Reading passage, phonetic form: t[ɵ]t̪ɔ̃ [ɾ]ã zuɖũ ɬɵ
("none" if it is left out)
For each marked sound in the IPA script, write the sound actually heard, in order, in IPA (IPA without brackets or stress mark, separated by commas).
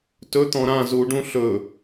ɵ, ɾ